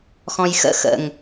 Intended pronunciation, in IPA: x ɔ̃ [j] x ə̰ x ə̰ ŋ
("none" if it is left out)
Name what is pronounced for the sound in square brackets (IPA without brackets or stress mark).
j